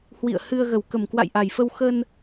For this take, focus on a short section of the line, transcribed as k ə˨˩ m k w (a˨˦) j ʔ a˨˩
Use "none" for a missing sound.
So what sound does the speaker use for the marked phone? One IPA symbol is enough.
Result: a̰˧˨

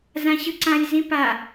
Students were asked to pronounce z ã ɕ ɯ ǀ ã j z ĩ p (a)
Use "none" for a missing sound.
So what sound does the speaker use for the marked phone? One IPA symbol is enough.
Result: a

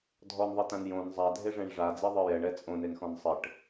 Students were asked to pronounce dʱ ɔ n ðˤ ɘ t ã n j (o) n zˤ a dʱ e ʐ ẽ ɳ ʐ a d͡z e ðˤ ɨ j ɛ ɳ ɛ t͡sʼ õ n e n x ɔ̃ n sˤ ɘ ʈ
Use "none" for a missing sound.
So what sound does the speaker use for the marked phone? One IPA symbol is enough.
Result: õ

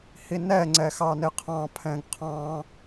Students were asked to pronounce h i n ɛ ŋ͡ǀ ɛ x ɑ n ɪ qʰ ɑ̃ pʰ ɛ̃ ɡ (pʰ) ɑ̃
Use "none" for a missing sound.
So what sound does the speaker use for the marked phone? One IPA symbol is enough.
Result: qʰ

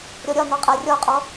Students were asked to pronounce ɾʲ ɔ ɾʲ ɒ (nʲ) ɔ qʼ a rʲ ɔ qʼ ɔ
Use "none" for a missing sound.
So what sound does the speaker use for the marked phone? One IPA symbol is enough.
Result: n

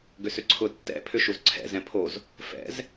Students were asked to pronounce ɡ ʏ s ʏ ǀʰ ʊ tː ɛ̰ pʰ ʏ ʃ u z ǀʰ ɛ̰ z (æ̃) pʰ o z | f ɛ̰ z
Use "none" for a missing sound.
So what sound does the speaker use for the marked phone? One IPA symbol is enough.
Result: ɛ̃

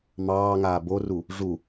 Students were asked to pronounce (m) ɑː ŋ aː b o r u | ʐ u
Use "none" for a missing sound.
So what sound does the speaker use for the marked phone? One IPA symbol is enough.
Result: m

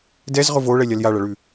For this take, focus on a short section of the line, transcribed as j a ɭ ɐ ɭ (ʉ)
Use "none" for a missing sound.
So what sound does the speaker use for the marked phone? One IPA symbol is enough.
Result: ʉ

